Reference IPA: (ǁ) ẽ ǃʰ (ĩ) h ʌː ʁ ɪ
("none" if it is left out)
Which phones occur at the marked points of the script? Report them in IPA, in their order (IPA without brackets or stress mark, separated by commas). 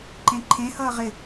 ǃ, ẽ